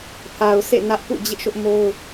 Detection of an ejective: absent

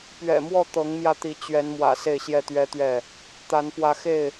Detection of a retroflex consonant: absent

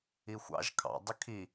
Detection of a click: absent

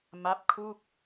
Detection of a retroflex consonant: absent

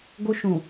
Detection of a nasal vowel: present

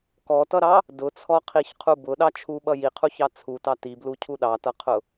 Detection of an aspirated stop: present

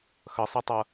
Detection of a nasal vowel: absent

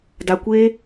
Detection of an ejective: absent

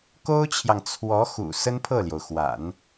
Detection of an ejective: absent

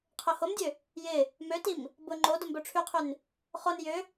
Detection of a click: present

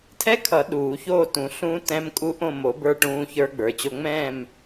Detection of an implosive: present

